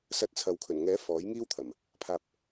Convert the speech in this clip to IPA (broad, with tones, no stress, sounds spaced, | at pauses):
s ɐ˧ t̚ t͡sʰ ɐ˨ w kʰ ɵ˨˩ n ŋ ɛː˨˥ f ɔː˨˥ j ŋ iː˥ w t̪ʰ ɐ˨˩ m | pʰ aː˧ p̚